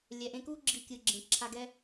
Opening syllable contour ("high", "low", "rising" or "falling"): low